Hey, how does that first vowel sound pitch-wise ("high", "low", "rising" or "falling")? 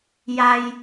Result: low